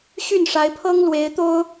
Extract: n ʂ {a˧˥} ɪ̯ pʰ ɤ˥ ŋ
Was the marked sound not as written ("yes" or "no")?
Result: no